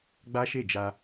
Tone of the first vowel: high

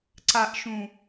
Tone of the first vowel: low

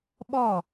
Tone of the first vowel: falling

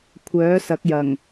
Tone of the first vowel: rising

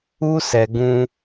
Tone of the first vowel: high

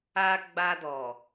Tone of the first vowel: high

